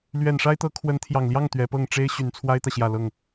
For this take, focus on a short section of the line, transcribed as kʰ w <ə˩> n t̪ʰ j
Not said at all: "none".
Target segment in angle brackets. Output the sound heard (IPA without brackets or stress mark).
ə˧˥